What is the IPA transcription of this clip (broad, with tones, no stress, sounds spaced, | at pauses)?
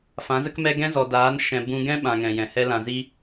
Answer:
f ã˨˦ z ə˦ k m ɛ˦ ɡ ɛ̃˦ z ɔ˨ d aː˨˦ n ʃ ɛ̃˨ b ũ˦ ɡ ɛ̃˦ ɓ ã˨ ŋ ɛ̃˨ j ɛ̃˨ h ɛ˦ l ã˨ z i˧